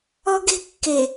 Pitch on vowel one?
high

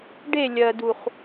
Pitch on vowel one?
falling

